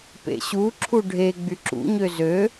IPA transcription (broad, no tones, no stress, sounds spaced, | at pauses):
p ḛ ɕ u ǁʰ u ɖʱ e ɡ͡b y ǁ ṵ ɲ ø z ø